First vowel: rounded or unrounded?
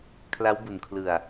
unrounded